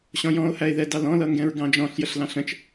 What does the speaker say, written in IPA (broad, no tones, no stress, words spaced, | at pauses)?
ɕɔ̃jɔ̃o̯hæe̯ðɛ dɑlɔ̃lʌŋɡɛ̃ɹ ɡɑ̃d͡ʒɔ̃ɬ jəɬlɑ̃ɬə̃t͡ʃ